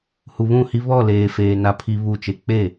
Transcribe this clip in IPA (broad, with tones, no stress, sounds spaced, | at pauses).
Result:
h u˨ β ũ˦˨ h i˦ β ɔ˦˨ l eː˨ f eː˨ n a˨ pʰ i˨ β u˦˨ t͡ʃ e˦ k͡p e˦˨